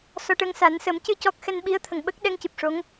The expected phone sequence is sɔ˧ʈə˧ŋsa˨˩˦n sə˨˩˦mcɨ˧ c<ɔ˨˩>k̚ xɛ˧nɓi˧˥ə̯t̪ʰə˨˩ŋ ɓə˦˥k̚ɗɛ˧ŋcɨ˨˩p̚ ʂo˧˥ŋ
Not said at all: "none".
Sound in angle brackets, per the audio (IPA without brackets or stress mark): ɔ˦˥